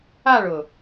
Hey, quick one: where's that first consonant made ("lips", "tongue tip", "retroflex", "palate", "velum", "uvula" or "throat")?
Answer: retroflex